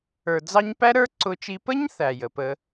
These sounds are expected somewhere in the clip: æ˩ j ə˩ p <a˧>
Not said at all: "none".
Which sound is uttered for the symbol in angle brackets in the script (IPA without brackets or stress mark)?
ə˧